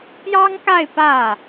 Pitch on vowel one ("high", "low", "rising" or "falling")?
high